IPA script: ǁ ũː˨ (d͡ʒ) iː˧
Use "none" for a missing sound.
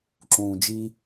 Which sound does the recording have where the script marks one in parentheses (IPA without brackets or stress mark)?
d͡ʒ